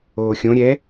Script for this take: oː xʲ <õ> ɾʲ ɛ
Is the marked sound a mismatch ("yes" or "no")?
no